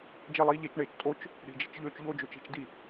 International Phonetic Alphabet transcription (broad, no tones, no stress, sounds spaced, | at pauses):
d͡ʒ e lˠ iː ʎ e t͡ʃ ɳ eː t͡ʃ tʼ o t͡ʃ | ɽ i̤ d͡ʒ i̤ t͡ʃ ʎ øː t͡ʃ ʎ o d͡ʒ ø t͡ʃ i̤ t͡ʃ d i